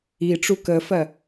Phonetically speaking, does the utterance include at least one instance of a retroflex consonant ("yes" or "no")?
yes